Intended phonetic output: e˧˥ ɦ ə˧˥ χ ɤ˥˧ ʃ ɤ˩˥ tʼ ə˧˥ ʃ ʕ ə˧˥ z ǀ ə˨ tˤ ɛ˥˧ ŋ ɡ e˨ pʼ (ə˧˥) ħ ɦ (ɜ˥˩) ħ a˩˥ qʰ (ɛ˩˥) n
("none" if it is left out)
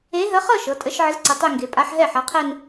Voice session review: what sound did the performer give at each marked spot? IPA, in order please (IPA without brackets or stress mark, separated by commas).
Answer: a˧˥, ɛ˥˩, ɛ˥˧